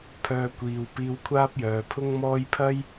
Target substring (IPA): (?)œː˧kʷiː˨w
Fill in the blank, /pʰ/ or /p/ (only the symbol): pʰ